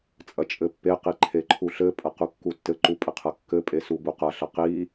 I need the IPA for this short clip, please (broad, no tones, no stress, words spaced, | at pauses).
t͡sʼɐt͡ʃʼɘpːeqi ǃʰeǃʰuɬɘpʼɐ qukːutːɘǃu pʼɘqʰɐkːɘpʼe subuqɐɬɐ qi